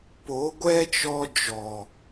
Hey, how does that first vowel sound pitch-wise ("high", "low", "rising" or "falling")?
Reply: rising